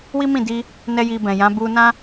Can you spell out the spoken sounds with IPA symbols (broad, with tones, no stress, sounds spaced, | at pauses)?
w i˦ m ĩ˦˨ d i˧ | n ɛ˦ j i˧ b ɛ̃˨ j ã˨˦ b u˧ n ã˦